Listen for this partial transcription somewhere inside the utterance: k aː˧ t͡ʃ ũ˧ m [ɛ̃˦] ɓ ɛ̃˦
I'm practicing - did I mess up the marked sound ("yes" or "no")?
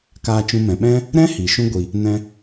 yes